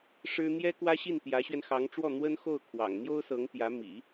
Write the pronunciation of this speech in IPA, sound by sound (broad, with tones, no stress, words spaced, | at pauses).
ʂɻ̩˥ n̪jɛ˥kwä˥ɕi˥˩n t̪jä˧˥ɕɥɛ˧nxɑ˧˥ŋʈ͡ʂwɔ˥˩ n̪wə˥nxo˥˩ʊ̯kʰwɑ̰˨˩ŋ n̪jo˥ʊ̯sɤ˧˥ŋt̪jä˧˥ mḭ˨˩˦